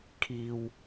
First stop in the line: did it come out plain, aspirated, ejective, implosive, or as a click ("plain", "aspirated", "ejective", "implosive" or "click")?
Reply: aspirated